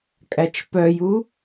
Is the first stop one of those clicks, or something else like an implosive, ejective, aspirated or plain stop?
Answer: ejective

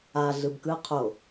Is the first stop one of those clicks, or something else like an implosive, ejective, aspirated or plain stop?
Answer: plain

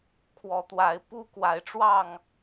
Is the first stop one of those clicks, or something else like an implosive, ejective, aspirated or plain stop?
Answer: aspirated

